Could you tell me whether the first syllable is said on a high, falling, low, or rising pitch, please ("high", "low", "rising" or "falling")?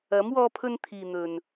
rising